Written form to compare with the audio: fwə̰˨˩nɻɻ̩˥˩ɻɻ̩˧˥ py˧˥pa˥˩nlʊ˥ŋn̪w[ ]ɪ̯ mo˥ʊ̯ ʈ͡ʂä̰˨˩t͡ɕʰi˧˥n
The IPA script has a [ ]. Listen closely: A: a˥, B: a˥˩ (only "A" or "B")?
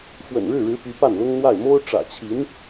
B